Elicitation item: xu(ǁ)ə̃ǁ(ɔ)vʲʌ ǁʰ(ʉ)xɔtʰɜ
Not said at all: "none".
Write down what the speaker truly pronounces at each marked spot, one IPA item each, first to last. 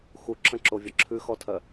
ǁ, o, ʉ

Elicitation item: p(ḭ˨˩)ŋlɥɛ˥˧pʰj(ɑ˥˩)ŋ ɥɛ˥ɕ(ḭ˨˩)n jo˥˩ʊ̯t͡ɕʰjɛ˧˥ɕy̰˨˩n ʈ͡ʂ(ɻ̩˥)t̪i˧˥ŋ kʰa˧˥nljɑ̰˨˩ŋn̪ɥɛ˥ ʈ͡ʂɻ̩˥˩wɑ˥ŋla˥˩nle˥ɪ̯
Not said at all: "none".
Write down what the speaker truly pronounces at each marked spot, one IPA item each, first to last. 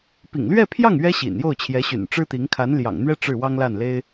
ḭ˨˩, ɑ˥˩, ḭ˨˩, ɻ̩˥

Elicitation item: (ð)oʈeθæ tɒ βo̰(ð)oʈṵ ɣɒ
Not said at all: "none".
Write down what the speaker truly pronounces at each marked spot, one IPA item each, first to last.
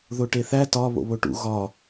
ð, β

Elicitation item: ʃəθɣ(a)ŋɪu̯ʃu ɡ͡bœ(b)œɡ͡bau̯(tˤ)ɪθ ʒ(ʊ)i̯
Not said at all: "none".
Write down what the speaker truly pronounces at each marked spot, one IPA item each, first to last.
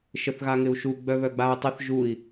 a, β, tˤ, u

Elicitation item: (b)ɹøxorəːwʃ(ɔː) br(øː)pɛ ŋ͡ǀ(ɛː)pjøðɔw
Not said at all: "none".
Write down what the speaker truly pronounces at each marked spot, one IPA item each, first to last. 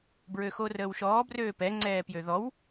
b, ɔː, øː, ɛː

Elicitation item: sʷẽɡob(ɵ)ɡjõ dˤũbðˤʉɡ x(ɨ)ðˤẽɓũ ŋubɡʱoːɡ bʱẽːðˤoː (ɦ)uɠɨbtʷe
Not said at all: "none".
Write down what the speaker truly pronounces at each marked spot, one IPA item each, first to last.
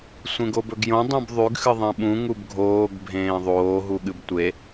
ɵ, ɨ, ɦ

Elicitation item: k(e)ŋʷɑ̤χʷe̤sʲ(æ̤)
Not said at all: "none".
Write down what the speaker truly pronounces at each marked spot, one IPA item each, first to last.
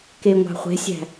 e, æ̤

